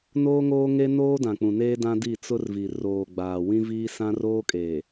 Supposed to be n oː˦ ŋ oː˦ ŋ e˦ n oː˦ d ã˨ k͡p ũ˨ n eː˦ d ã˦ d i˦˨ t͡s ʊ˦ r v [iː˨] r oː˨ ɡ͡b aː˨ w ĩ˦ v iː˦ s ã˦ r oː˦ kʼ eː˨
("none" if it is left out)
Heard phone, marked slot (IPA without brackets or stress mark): i˨